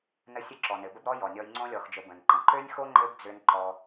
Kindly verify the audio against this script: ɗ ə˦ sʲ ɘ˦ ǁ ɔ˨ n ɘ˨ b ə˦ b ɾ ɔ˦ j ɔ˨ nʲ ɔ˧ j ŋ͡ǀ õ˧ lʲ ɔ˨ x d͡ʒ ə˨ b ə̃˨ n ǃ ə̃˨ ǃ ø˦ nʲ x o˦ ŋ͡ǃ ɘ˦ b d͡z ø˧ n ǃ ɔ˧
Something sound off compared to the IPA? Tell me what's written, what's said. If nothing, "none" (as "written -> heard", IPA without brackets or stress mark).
ɗ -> n